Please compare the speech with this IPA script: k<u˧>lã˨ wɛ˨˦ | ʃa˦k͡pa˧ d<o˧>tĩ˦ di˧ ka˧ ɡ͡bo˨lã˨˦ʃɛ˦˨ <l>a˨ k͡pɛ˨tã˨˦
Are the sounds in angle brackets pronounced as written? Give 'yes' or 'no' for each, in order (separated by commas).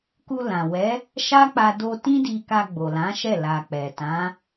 yes, yes, yes